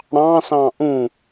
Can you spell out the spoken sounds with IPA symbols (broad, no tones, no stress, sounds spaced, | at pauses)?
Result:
ɽ ɑ̃ s ɑ̃ ʔ ũ